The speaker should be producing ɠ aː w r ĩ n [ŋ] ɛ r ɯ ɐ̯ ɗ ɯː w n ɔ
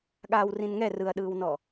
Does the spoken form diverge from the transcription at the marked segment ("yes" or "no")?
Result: no